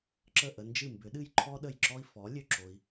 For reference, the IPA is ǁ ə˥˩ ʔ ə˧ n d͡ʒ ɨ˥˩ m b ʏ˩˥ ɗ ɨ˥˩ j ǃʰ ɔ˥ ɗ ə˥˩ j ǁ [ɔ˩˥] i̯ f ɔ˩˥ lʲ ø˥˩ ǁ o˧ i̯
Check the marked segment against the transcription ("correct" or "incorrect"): incorrect